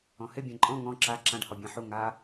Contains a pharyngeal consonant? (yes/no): yes